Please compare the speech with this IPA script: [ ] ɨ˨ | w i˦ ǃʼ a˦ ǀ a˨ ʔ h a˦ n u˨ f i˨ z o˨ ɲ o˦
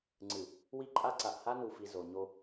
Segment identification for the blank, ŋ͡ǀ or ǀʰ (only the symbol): ŋ͡ǀ